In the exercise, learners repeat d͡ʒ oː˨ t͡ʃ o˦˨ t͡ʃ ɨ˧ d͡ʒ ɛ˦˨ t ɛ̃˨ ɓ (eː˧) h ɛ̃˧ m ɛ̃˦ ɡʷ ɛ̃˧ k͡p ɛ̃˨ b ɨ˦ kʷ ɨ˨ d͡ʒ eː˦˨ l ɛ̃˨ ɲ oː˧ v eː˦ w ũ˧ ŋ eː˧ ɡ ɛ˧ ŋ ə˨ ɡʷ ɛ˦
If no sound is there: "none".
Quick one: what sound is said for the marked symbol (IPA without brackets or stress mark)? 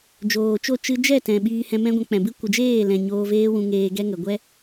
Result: iː˧